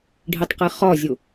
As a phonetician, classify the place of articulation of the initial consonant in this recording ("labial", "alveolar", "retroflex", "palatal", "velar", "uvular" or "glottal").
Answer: retroflex